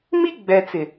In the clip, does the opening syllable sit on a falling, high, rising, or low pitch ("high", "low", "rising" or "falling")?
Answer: high